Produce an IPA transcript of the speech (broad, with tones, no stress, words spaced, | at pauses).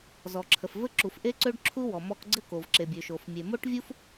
zɔ˩ǁʰə˩f vɘ˥ǁu˩f ʔe˥ǀø˥ɖǁʰu˥ wɔ˩mɔ˥k ɡ͡ǀɘ˥ko˩v ǁe˩bʲø˩ʃo˩f mʲe˩mo˥ʈvʲu˥f